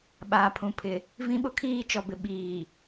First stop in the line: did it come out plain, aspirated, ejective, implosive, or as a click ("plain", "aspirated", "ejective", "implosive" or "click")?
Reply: implosive